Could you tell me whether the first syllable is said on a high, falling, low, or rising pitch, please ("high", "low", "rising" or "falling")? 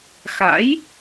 rising